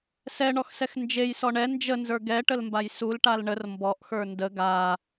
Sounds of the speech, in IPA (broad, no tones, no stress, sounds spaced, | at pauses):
s ɛ ɳ ɔ x s ɛ x n d͡ʒ e j s ɔ ɳ ɛ n d͡ʒ ə n z ə˞ ɡ ɛ ʈ ə l m b a j s u l ʈ a l ɳ ə r m b ɔ ʔ x ə˞ n d ə ɡ a